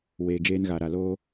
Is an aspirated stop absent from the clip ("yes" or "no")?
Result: yes